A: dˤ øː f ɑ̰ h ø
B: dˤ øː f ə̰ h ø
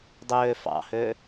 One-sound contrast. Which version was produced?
A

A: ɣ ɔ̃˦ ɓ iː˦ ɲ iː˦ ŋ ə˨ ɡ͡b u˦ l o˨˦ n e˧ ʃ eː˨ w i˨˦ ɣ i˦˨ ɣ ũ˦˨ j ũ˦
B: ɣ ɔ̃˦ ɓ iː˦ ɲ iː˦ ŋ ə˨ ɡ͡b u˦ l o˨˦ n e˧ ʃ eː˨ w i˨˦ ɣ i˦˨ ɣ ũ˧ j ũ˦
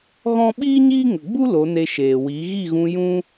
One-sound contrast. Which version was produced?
B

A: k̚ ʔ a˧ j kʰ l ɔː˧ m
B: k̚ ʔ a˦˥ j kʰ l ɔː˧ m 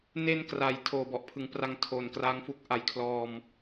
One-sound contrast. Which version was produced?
A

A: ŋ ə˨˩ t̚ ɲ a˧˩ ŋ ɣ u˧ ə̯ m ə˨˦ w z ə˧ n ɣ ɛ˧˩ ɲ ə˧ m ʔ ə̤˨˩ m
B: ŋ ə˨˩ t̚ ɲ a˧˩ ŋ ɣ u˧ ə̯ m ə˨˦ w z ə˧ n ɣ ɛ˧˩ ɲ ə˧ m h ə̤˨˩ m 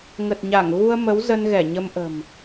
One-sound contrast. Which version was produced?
A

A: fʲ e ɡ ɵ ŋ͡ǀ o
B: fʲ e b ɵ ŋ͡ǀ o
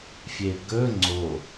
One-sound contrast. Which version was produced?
A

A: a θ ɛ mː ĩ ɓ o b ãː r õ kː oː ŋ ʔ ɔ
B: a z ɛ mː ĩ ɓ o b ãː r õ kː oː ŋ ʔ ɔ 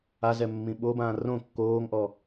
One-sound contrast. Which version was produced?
B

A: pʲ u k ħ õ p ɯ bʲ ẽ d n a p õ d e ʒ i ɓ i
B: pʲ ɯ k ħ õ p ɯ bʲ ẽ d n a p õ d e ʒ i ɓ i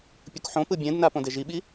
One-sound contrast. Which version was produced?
A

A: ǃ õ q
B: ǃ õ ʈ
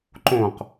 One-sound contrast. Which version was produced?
A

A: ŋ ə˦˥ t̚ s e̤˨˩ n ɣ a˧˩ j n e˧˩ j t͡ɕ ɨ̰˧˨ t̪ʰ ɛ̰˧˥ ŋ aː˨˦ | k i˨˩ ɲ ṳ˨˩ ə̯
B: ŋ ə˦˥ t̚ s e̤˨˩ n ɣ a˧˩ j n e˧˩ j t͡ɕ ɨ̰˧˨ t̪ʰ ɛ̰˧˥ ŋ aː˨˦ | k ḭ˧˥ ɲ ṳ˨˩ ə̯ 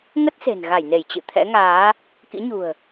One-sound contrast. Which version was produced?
B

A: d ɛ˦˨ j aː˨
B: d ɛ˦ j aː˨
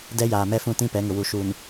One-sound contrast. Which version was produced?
B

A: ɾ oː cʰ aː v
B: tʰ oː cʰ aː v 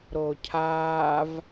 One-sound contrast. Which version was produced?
A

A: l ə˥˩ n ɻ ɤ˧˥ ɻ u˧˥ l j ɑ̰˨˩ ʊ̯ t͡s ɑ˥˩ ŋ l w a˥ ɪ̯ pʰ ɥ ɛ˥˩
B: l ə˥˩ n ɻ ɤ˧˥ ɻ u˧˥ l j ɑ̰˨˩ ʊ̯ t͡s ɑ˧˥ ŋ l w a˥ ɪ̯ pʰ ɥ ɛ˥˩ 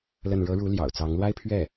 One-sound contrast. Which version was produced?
B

